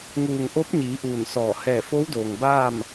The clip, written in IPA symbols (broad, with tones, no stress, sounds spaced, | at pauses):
ŋ uː˧˩ ŋ ʔ o˧˥ p̚ ɲ iː˩˧ ʔ uː˧˩ n s ɔː˧˩ h ɛː˧˩ f o˧˥ w d oː˩ ŋ b aː˥˨ m